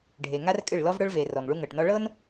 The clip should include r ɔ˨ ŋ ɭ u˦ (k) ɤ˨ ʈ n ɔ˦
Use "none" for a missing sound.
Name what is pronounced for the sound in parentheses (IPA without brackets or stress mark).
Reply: ŋ